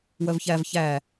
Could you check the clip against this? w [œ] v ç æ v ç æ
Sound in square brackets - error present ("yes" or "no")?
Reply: no